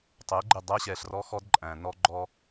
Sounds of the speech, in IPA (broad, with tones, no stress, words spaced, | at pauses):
tˤɛ˨˦ɡ͡ǃɪ˦˨ dˤæ˦ɕɛ˨ɬrɔ˦xɔ˦d ǃʼæ̃˨nɔ˦ ɡ͡ǃɔ˦